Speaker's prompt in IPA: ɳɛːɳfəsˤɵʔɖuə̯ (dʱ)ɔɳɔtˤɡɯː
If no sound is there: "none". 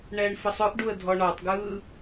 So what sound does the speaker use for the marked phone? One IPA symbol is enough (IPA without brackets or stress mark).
dʱ